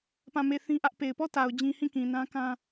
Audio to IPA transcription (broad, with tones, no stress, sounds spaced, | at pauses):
p ã˦˨ m e˦˨ θ ĩ˦ ʔ ä˦ ʔ p e˨ ɪ̯ p ɔ˦˨ t a˨ ʊ̯ d͡ʑ ĩ˦ h ĩ˦˨ k ĩ˨ n ã˦ k ã˦